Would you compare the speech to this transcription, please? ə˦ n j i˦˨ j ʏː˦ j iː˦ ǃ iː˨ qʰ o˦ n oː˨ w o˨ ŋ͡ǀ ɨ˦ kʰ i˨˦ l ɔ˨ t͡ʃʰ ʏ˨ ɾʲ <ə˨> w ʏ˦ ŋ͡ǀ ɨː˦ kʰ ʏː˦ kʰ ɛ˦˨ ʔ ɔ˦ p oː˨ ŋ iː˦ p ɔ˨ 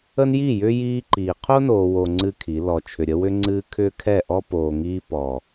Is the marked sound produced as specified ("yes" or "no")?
no